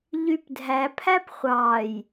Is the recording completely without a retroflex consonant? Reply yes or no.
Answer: yes